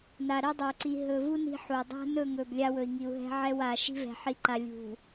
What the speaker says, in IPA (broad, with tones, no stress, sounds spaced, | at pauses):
n a˨ ɾ ɛ˦ dˤ ɵ˨ u̯ ǀ i˨ ɦ ɵ˨ v u˦ n i̤˦ ħ u˨ dˤ a̤˦ n ɵ˦˨ ŋ ɵ˨ b lʲ a˦ w ɵ˨ i̯ ŋ i˨ u̯ ɦ ɛ̤˦ ʕ ɛ˦ w a˨ ʃ i̤˦ v ɛ̤˨ ħ i˨ ǃ a˨ lʲ ṳ˨